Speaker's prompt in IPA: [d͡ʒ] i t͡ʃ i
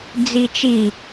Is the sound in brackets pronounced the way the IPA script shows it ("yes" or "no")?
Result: no